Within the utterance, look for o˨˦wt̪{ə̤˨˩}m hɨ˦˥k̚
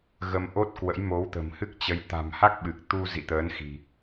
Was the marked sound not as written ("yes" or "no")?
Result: no